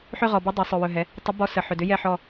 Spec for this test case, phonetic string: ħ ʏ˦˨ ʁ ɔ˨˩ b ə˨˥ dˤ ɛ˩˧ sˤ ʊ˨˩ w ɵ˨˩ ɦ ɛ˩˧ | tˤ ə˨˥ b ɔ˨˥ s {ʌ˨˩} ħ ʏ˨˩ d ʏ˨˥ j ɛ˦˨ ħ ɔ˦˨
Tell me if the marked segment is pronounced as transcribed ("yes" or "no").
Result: no